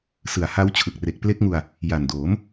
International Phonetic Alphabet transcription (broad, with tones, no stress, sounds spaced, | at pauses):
s ɯ˨˩ a̯ h a˦˥ w t͡ɕʰ ɯ˨˩ k̚ r e˨˩ k̚ p l e˦˥ k̚ ŋ u˧ a̯ | j a˨˩ n d oː˩˦ m